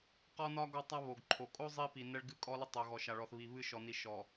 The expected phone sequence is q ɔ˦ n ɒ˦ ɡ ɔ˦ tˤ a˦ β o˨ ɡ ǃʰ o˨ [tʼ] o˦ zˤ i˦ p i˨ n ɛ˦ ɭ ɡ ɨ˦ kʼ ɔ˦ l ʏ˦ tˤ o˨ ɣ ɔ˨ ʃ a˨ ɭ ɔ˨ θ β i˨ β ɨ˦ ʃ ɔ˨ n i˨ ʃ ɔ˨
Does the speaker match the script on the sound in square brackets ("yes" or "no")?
no